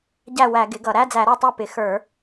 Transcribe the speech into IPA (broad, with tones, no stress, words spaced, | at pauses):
ɟæ˥˩wæ˧˩˧ ɡɪ˩˥ɡʌ˧˩˧ ɾæ˧˥˧d͡zæ˧˩˧ɾə˞˥˩tˤæ˥˩ pɪ˩˥xə˞˧˩˧